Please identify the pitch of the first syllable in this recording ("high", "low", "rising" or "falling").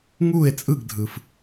falling